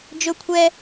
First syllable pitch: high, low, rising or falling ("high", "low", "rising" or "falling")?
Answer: high